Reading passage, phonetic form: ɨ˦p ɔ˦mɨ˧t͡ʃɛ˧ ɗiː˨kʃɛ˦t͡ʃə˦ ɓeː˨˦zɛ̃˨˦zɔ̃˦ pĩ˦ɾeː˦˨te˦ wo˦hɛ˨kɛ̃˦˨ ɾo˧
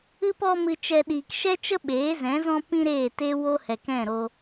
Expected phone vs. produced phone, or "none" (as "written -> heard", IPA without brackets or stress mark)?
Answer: none